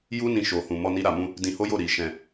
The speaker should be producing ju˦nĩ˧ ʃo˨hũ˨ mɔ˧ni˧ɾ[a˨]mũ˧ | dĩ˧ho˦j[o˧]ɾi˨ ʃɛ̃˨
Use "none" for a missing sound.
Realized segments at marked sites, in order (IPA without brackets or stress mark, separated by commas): a˨, o˦˨